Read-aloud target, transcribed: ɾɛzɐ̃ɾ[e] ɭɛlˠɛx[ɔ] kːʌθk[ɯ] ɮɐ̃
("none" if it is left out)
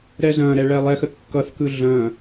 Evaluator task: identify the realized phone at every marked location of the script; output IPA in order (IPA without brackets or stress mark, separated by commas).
ɛ, ə, ɯ